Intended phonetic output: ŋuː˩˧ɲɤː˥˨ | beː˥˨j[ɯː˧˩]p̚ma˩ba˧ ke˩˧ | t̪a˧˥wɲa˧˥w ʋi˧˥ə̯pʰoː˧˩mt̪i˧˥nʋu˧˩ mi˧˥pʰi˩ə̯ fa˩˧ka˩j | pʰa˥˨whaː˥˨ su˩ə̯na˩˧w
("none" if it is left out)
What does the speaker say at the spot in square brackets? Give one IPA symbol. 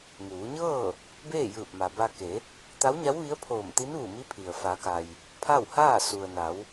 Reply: ɯː˧˩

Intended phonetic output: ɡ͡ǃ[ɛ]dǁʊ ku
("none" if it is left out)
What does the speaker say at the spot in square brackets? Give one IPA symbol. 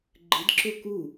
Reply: ɨ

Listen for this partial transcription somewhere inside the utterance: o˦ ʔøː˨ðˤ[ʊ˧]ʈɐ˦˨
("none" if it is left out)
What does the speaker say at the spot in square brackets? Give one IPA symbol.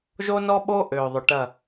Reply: ʊ˨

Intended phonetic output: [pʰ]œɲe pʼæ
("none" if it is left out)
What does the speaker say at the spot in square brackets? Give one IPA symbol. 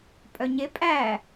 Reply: pʼ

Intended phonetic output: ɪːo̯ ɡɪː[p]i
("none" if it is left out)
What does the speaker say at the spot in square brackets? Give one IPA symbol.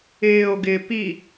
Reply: p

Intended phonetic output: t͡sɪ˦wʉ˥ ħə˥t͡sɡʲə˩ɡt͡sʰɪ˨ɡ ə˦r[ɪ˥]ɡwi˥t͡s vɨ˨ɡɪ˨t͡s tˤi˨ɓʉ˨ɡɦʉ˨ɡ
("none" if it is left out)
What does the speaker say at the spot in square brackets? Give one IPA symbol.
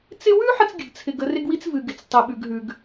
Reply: ɪ˥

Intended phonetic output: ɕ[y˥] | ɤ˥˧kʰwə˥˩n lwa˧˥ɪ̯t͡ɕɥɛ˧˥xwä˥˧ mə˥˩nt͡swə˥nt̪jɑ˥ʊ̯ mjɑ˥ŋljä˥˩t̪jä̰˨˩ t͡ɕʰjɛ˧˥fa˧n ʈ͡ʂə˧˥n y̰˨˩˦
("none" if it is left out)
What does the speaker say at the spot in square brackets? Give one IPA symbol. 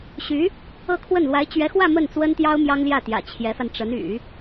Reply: y˧˥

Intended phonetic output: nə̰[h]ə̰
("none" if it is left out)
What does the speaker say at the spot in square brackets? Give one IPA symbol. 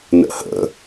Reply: h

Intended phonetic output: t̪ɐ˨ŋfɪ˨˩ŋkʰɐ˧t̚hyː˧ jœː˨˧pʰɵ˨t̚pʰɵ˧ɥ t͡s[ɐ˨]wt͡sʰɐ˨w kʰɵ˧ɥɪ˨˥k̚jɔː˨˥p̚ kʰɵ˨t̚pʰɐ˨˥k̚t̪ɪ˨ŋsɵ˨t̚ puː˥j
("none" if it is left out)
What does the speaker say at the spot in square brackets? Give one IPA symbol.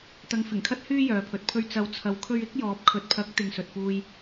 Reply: ɐ˨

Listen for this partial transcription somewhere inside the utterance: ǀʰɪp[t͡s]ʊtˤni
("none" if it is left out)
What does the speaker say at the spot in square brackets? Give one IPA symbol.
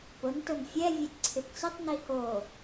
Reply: t͡s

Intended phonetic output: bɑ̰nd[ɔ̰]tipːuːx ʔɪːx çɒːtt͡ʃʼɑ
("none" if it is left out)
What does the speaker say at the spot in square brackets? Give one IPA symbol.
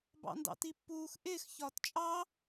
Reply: ɑ̰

